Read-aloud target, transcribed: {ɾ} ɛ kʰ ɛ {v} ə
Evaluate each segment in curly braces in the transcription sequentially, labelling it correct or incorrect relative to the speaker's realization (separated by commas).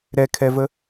correct, correct